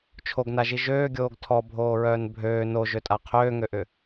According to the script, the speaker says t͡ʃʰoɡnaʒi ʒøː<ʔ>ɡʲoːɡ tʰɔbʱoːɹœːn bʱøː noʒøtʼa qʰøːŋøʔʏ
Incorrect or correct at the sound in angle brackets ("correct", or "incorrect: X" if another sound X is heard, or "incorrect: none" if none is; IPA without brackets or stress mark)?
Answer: incorrect: none